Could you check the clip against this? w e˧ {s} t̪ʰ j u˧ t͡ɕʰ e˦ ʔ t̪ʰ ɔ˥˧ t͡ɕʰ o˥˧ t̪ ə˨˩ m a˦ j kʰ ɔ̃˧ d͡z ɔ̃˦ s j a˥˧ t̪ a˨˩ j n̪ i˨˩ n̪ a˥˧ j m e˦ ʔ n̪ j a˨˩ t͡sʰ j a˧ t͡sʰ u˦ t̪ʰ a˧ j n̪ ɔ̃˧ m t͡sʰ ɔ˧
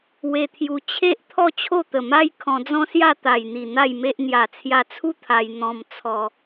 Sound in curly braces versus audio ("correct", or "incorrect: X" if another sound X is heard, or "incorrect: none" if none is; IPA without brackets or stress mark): incorrect: none